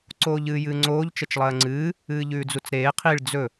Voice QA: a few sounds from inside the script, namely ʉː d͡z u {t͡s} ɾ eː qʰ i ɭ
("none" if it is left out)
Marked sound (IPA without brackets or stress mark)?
t͡s